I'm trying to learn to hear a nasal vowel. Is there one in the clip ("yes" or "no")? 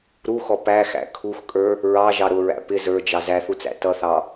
no